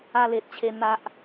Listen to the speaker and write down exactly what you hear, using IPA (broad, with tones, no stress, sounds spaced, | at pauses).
a˧ l e˨ t̚ t͡ɕʰ e˧ n̪ a˦ ʔ